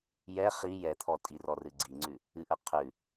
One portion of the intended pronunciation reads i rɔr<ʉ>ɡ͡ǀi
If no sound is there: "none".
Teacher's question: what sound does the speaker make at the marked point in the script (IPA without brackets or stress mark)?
ɨ